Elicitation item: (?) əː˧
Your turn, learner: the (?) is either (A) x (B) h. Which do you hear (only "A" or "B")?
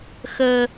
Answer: A